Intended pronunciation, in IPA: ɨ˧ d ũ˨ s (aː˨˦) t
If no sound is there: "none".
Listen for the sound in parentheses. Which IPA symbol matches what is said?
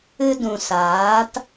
aː˨˦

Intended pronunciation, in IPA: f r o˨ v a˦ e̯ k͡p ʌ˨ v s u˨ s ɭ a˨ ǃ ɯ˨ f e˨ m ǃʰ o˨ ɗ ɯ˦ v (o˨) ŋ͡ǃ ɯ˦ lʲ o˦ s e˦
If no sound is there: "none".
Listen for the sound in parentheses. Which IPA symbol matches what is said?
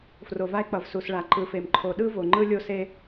o˨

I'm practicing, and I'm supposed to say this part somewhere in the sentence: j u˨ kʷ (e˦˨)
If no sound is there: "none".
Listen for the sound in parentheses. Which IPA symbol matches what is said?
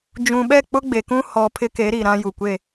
e˦˨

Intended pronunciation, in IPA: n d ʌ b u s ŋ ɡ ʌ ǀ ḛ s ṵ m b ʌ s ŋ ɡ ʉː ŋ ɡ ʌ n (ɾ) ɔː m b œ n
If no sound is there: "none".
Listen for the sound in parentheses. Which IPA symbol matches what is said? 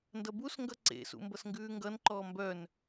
ǃ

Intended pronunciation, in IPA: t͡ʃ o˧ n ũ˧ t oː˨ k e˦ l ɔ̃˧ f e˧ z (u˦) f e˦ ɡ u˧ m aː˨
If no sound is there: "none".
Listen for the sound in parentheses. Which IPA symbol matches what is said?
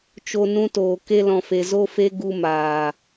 o˦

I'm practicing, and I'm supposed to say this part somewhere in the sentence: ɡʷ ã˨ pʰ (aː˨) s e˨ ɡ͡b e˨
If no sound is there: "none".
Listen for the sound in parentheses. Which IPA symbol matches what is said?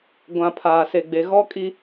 aː˨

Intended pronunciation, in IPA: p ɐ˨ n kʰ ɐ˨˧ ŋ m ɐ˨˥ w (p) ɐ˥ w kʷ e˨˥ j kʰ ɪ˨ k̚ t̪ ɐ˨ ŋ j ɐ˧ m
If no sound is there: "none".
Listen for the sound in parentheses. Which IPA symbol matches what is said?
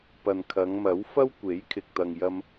f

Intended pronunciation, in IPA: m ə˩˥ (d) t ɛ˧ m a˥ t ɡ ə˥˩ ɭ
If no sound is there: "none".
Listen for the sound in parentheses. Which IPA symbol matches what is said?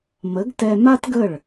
ɡ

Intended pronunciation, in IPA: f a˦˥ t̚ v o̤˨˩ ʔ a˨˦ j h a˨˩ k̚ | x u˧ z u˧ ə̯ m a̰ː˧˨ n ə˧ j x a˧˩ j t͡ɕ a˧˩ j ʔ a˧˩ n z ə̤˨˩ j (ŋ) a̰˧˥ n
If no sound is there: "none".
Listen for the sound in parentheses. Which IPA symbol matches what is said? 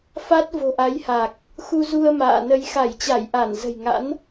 ŋ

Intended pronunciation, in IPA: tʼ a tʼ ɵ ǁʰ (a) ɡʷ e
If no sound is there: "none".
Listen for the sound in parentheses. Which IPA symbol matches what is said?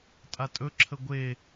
ə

